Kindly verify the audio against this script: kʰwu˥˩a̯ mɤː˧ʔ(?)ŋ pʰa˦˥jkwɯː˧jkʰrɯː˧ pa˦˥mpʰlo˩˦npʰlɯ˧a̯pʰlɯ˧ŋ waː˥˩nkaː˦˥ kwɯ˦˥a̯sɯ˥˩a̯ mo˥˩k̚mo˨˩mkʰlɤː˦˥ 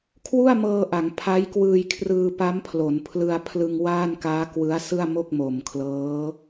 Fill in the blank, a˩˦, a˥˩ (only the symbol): a˩˦